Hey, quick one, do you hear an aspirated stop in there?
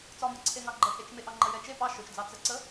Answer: yes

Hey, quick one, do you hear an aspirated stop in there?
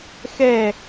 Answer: no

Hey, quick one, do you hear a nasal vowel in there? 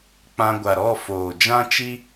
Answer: yes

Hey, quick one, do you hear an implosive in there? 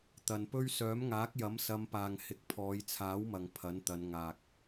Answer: no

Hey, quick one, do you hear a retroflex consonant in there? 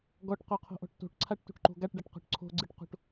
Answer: yes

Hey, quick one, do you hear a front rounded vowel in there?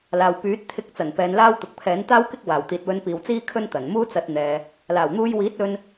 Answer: yes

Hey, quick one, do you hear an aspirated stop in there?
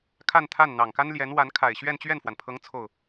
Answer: yes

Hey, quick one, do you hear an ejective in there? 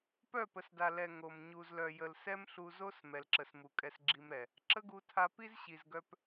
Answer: yes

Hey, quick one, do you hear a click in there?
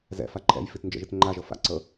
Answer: yes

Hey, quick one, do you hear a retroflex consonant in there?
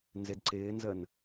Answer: no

